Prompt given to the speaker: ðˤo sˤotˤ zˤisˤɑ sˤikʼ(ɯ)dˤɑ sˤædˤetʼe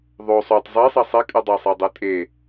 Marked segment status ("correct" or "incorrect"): correct